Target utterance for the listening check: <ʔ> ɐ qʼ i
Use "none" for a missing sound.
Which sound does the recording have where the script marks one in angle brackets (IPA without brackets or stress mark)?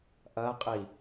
ʔ